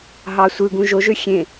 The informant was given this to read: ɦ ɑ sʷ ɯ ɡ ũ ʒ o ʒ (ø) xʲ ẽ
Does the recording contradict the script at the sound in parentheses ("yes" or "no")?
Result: no